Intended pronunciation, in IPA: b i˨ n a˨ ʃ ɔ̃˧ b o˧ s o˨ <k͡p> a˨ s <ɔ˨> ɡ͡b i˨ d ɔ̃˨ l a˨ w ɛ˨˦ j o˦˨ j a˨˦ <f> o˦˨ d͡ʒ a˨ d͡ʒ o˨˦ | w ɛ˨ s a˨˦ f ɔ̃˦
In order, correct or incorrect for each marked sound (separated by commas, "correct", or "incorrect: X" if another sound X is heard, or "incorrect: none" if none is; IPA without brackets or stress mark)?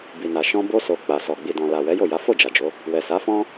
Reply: correct, correct, correct